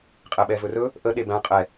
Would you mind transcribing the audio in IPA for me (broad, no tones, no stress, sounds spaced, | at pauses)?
qʼ ɛ ɓ ɛ v ɵ r ɵ | ʔ ə ɗ e b æ̃ qʼ ɛ